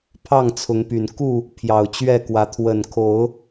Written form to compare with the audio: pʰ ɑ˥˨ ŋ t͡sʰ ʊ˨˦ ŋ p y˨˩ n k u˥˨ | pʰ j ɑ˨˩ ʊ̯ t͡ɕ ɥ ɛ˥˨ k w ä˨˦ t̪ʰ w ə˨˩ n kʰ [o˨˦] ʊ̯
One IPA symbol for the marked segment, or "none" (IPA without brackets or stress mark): o˨˦